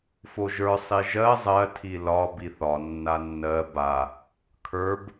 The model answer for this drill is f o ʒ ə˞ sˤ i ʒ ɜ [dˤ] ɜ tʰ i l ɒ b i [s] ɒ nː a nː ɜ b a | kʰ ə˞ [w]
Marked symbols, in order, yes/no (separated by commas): no, no, no